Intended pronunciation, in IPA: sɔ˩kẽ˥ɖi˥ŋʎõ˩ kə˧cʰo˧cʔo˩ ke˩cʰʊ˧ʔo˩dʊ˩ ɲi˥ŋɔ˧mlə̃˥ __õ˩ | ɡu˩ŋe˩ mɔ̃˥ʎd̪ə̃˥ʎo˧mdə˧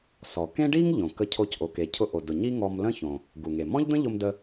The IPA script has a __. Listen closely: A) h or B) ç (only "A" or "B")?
B